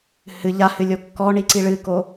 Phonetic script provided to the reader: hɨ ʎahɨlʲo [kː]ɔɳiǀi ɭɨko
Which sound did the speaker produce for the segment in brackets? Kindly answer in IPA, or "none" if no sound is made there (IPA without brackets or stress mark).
kː